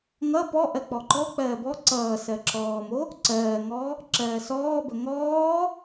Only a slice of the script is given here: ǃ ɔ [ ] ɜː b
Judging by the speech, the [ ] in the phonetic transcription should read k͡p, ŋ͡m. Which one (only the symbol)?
k͡p